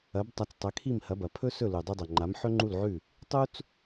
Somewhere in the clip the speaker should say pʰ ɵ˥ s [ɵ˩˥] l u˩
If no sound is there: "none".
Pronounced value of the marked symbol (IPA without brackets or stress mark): ɵ˥˩